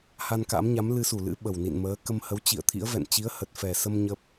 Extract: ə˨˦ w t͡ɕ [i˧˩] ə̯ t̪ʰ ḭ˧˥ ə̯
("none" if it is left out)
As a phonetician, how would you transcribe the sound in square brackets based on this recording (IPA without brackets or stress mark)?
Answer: ḭ˧˨